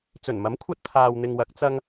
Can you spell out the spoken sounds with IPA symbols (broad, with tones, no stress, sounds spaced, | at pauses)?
t͡s ɵ˨˩ n m ɐ˨˥ m kʷʰ ɐ˧ t̚ t̪ʰ aː˨ w n̪ ɪ˨ ŋ w ɐ˨˥ k̚ t͡s ɐ˧ ŋ